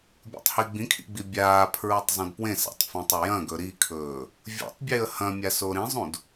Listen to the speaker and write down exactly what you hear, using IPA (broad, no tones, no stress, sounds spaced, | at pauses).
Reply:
bʲ ṵ tˤ h i ɡ͡b ĩ kʰ ḭ ɡ͡b i bʲ aː pʰ ɹ u tˤ zˤ ũ d p w ẽ s a̰ tˤ f ĩ tˤ ɐ j ɐ̃ ɡ ɵ ɾ i kʰ ɵː | vʲ ṵ tˤ bʲ e ə̯ h ɐ̃ mʲ a s o ɾ ĩ zˤ ũ d